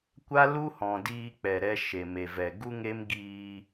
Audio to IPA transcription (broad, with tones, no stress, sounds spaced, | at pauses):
kʷ a˦ l u˦ h ɔ̃˨ d iː˧ k͡p ɛ˨ ɾ ɛ˧ ʃ e˨ m e˨ v ɛ˨ ɡ u˦ ŋ e˦ m ɡ iː˧